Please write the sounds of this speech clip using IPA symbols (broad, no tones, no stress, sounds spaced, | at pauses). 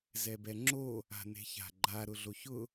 z ɛ b ɛ ŋ͡ǁ o | a̤ n e̤ ç a̤ ɡ͡ǃ a ɾ ʊ ɮ o ç ʊ